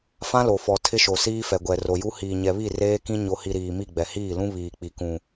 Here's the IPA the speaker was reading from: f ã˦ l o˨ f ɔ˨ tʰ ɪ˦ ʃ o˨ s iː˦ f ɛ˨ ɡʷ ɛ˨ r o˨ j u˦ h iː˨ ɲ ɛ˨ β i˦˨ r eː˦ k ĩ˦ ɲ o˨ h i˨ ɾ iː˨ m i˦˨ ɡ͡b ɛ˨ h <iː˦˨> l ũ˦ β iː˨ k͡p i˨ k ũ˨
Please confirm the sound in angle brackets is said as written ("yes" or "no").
yes